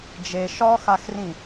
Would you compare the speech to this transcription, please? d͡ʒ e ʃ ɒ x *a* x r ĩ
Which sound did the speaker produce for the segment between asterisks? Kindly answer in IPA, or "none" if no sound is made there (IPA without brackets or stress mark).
a